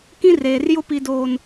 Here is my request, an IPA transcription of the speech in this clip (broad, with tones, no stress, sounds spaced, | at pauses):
k ĩ˦ r eː˨ r j ʊ˦ p i˨ d oː˨ n